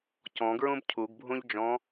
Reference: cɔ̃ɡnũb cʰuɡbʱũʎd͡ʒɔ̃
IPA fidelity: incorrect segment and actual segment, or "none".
n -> ɹ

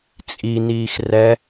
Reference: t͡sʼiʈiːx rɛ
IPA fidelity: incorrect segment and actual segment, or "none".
ʈ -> n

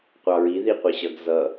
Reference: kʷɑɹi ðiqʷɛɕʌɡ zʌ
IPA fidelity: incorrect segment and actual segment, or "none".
kʷ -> qʷ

